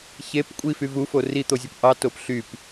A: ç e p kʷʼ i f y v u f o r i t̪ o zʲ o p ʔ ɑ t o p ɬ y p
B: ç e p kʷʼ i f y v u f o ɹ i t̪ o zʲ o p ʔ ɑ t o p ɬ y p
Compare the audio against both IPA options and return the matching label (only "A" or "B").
A